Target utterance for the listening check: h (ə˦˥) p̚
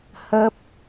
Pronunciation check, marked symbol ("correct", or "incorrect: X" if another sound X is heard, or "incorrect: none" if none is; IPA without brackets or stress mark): correct